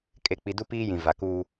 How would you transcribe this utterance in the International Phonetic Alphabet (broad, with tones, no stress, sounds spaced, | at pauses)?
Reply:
kʼ e˨ k͡p i˨ d u˦ p iː˦ j ĩ˨ v a˨ k uː˦